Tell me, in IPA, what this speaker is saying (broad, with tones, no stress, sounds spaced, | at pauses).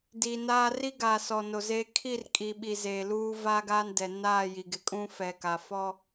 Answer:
d iː˨ n aː˦ r i˦ ɡ aː˨ s ɔ˨ n o˨ z eː˦ kʰ i˦˨ r kʼ i˨ ɓ i˨ z eː˨ l uː˦ v aː˦ ɡ aː˦ n d ɛ˨ n aː˦˨ j i˨ ɡ ɪ˨ kʼ ũ˦ f ɛ˨ k a˨ f ɔ˦